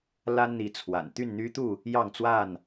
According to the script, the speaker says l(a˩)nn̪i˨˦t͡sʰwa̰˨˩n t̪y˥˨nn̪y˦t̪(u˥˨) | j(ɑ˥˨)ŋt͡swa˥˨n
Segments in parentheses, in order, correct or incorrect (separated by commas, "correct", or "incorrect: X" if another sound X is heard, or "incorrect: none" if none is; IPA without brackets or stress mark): incorrect: a˦, correct, correct